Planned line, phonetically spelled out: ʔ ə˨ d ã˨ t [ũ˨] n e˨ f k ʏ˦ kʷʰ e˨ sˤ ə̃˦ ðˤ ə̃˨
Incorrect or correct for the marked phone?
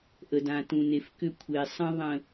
correct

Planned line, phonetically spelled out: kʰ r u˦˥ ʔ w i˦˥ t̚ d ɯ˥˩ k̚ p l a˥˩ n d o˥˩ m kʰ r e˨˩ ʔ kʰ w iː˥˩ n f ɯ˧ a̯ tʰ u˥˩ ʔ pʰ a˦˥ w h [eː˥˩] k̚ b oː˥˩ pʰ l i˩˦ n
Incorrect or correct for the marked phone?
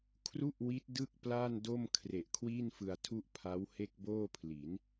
incorrect: e˥˩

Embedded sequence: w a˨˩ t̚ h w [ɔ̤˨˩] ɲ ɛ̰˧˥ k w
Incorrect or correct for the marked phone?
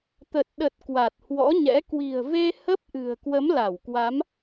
incorrect: ɔ̰˧˥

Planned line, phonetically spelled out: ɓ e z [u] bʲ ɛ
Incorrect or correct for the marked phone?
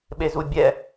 correct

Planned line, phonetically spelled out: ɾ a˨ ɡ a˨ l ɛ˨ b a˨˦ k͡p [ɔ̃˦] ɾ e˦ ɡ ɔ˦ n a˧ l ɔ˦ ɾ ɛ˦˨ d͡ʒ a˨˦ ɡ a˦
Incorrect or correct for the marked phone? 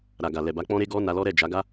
correct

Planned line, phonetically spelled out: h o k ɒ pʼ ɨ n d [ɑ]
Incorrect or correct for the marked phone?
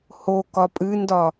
incorrect: ɒ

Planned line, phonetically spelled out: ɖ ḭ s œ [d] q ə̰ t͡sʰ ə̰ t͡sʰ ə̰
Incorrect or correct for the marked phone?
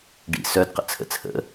correct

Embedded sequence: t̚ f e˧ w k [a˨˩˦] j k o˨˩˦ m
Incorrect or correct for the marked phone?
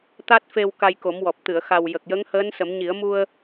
incorrect: a˧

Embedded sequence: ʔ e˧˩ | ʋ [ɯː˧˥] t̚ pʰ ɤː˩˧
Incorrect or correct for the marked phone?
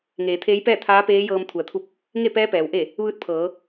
correct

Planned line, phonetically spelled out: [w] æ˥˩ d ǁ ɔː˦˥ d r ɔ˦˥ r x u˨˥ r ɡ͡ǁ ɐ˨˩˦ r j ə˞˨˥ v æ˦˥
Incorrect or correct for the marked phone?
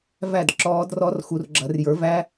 incorrect: v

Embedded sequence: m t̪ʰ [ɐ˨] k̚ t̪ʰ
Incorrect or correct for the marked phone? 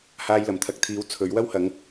incorrect: ɐ˨˥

